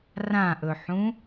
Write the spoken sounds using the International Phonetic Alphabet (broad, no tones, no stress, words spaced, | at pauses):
rãʔɵħũ